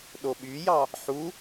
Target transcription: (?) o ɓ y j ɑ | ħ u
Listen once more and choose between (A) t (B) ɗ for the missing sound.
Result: B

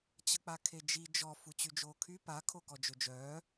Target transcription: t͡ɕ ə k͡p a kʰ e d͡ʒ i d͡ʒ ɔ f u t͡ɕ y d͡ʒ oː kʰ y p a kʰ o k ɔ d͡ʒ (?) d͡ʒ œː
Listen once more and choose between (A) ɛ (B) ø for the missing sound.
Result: B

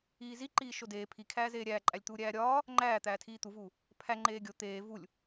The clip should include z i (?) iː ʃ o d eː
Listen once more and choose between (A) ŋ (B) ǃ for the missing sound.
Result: B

